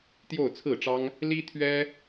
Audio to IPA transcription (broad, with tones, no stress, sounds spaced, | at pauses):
t̪ j o˥˧ ʊ̯ t͡sʰ ɹ̩˥˩ ʈ͡ʂ ɑ˥ ŋ | l i˥ t̪ʰ ɥ ɛ˥